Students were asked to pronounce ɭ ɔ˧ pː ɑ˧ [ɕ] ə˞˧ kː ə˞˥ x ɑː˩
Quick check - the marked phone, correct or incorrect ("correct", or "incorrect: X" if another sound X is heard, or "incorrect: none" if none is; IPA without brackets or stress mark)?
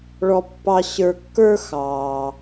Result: correct